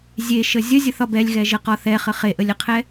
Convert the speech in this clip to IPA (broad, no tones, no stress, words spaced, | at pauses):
zʲeʃə zʲəzʲəθɒb ɛlʲɣɛʒəqɒ θɛχə χeʔəlʲəqʰɛ